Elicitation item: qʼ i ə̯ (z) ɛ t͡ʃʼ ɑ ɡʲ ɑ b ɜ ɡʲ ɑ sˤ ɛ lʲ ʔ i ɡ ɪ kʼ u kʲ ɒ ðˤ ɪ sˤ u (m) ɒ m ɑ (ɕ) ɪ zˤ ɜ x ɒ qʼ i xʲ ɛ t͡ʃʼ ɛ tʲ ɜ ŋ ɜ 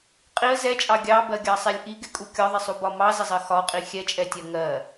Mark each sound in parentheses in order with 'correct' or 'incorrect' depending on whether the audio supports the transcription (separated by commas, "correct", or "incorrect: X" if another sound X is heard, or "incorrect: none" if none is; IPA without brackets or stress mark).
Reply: correct, incorrect: b, incorrect: z